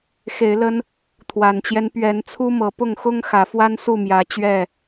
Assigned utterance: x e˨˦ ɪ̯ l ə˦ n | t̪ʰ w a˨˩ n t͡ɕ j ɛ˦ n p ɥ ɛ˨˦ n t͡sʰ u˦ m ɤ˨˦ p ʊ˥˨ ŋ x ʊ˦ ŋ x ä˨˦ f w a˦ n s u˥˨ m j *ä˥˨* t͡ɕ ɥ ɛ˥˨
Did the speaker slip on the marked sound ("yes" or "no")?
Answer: yes